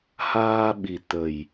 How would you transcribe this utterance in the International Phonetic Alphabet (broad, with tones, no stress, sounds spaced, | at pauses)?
h aː˧ ɓ i˨˩ t̪ ə˨˩ j